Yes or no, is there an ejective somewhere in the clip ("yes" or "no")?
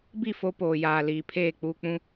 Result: no